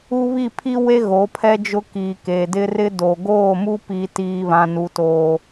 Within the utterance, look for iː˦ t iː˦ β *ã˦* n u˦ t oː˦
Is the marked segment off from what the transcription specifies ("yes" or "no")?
no